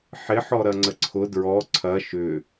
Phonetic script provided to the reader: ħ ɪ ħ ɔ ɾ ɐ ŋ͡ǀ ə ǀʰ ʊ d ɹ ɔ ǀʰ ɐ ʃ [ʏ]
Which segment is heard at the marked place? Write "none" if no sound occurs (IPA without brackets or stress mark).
ʏ